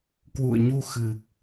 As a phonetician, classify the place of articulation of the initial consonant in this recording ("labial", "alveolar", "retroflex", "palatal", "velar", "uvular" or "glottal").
velar